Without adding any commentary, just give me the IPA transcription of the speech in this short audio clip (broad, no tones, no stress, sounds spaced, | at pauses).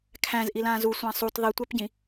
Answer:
kʰ æ̃ z ʔ i l ãː z u sʷ ã sˤ u t ðˤ i tʷ æ p ɟ ĩ